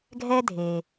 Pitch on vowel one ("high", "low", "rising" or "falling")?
high